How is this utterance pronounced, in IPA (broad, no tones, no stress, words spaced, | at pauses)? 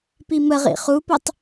piməʁḭ χupʌtˤ